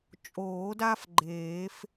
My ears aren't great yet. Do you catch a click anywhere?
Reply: yes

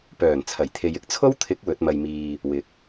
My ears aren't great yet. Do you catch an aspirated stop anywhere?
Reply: yes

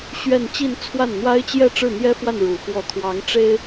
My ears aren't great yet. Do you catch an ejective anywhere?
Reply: no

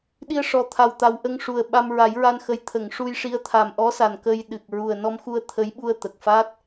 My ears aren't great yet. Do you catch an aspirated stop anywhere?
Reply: yes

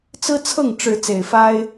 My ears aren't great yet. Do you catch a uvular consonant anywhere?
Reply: no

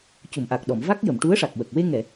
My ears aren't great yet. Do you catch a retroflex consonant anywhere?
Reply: yes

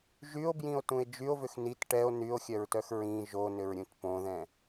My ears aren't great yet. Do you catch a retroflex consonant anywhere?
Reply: yes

